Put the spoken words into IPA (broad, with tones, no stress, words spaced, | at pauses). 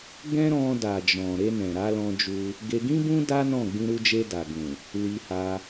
ɡɛ̃˦ɾɔ̃˧ da˨d͡ʒɔ̃˨ ɾe˧nɛ̃˨ ɾa˨˦lɔ̃˧d͡ʒu˧ | ɡe˧ ɡĩ˦bũ˦ da˦nɔ̃˦˨ ɡ͡bĩ˧ɾu˧d͡ʒe˧ da˨ ɡũ˨ | li˧ha˧